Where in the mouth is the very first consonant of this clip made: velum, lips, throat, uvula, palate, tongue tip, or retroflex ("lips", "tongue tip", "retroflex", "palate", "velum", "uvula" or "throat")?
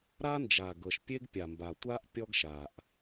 tongue tip